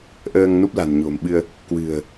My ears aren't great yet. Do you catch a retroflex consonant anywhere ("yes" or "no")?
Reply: no